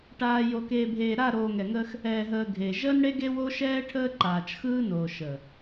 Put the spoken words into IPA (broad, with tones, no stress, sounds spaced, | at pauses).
ʈ aː˨ j o˨ k eː˨ bʱ eː˨ ɾ a˦˨ ɾ oː˨ ŋ ɛ˨ ŋ əː˦ x | ɛː˨ ɦ əː˨ ɡʱ e˨ ʒ əː˦ n ɽ e˦ ɡ e˦ w o˦ ʃ ɛː˦ ʈʰ əː˦ ǃ aː˨ t͡ʃ x ɯː˦ n oː˨ ʃ əː˨